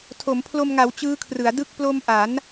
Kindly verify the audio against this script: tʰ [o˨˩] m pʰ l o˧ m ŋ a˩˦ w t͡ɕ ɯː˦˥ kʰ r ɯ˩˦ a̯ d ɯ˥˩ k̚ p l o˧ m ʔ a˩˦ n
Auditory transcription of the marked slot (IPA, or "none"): o˩˦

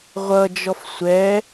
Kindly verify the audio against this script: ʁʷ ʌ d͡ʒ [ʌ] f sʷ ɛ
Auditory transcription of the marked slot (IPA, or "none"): ɔ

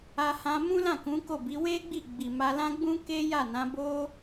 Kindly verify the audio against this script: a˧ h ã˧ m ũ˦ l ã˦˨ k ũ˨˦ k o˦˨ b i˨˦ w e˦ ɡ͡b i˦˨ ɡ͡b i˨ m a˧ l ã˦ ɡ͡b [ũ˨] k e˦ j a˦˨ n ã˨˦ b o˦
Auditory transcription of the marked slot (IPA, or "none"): ũ˦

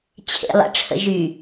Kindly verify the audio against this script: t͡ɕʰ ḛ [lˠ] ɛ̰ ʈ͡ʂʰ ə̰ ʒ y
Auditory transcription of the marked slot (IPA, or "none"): lˠ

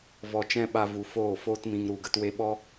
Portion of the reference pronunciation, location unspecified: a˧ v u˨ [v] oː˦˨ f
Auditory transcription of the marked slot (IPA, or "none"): f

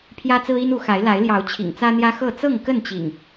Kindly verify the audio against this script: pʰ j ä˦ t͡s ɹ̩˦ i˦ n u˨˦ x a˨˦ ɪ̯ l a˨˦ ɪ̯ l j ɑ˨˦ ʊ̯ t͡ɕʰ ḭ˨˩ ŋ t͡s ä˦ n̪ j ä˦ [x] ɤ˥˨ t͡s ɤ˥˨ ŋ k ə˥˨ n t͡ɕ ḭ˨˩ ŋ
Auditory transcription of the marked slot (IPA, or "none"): x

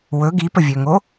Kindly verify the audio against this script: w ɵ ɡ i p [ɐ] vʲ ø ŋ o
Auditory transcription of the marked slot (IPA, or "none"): ə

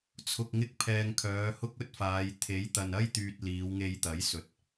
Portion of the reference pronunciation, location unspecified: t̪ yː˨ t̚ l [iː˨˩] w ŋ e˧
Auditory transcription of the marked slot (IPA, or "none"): iː˨˧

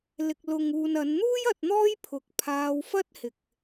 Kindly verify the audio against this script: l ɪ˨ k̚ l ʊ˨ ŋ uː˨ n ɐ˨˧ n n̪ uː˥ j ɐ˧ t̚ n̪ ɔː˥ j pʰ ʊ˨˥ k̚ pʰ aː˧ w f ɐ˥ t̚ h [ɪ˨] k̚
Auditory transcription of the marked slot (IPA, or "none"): ɪ˨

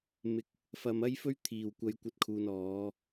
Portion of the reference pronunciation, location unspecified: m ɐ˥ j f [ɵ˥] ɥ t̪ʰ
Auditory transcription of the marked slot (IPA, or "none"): ɵ˥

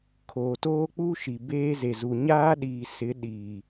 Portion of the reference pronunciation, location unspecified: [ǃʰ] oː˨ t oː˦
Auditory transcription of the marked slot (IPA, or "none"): kʰ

